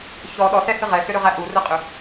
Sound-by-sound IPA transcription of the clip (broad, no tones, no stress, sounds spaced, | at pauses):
ç ɔ ɗ ɔ s ɛ h ɨ ʁ ɛ s ʏ ɾ ʏ ʁ æ ʔ u r ɨ qʼ ʏ